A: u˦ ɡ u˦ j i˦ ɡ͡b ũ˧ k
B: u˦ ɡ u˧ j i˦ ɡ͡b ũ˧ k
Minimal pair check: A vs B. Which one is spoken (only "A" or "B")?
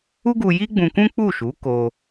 B